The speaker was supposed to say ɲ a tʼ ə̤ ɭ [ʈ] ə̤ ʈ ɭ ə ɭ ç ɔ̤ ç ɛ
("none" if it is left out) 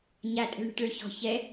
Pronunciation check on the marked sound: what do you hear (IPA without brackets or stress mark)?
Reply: ɳ